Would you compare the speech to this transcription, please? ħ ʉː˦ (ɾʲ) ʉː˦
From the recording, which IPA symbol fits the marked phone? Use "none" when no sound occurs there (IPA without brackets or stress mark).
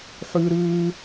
ɾ